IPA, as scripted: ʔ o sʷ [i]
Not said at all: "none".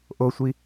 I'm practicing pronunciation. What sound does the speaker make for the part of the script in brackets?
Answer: i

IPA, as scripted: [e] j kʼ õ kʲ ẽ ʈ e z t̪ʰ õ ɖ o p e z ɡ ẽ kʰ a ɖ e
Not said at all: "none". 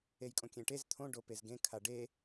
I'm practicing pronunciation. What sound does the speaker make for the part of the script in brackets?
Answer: e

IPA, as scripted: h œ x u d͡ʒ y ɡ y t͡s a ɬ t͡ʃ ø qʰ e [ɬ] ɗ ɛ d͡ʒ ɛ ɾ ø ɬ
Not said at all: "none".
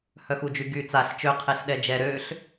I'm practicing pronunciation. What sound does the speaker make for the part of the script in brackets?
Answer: ɬ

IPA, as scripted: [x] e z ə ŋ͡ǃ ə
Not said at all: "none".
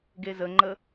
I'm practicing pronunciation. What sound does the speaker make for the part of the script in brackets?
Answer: ɡ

